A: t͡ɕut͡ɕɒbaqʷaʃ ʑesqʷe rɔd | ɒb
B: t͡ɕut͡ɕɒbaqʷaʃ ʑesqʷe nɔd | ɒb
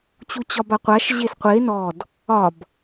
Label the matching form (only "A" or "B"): B